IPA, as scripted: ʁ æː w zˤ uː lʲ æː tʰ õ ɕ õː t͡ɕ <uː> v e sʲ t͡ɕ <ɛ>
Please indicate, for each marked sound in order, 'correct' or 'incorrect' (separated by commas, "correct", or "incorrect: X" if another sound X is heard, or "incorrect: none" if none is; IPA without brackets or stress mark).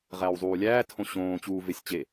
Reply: correct, incorrect: e